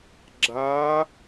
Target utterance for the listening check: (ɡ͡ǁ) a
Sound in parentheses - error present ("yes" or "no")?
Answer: no